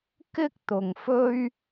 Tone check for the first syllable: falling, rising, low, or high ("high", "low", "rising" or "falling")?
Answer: high